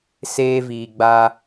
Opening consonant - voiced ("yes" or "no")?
no